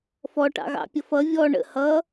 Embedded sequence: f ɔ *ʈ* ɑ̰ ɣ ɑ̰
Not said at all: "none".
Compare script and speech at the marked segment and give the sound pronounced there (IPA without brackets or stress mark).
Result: ʈ